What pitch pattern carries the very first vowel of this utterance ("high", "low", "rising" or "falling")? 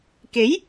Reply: rising